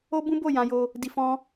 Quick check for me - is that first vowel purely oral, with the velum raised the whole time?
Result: yes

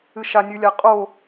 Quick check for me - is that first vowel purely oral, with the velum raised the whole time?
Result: yes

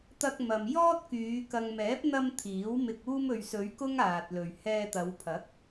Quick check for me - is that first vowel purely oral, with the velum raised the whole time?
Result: yes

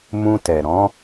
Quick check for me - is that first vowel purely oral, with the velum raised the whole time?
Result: no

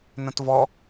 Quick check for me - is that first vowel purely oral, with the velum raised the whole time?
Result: no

